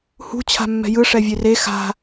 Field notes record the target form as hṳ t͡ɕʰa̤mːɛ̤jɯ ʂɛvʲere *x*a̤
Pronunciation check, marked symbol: correct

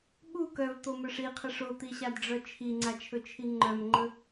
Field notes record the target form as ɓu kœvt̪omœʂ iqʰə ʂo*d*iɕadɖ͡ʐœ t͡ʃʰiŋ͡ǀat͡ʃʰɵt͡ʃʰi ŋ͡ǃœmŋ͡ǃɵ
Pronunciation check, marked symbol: incorrect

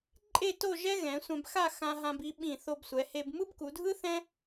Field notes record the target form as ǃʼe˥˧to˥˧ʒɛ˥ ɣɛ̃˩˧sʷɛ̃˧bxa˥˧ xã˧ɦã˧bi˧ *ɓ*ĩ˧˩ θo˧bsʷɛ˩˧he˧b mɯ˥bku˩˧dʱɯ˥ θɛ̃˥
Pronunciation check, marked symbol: correct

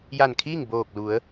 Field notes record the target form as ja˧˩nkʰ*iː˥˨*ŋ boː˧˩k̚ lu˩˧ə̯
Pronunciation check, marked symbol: correct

